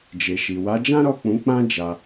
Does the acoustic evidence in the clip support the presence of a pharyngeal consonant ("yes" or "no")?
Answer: no